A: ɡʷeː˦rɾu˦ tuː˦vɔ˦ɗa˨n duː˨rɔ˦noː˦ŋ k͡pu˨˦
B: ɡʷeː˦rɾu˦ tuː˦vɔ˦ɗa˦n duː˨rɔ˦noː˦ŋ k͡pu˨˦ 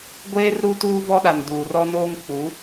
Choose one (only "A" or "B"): A